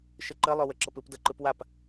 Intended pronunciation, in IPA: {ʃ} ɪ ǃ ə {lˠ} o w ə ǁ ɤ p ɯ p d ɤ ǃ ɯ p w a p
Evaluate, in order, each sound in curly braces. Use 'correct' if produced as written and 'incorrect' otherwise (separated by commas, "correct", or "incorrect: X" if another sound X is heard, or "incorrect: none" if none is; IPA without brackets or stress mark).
correct, correct